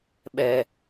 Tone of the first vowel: high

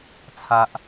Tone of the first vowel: high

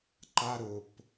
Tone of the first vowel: high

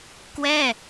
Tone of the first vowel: falling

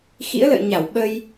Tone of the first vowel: rising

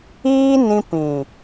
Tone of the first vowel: high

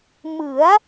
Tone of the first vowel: rising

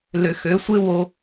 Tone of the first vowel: low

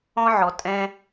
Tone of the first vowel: high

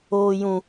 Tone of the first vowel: high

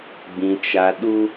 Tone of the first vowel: high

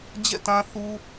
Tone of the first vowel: falling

